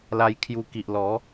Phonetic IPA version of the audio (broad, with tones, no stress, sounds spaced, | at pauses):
l a˧ j kʰ j u˧ k i˨ ʔ l ɔ˨˦